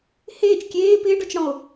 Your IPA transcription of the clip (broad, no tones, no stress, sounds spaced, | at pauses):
h eː t͡ʃ kʲ eː p ɪː ɖ ɔ t͡ʃ ɽ ɔ̃ o̯